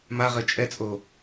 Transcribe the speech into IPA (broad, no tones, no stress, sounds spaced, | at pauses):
m a ʁ ɘ t͡ʃʼ ɛ t͡sʼ o